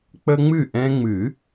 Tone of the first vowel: high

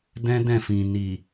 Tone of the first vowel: high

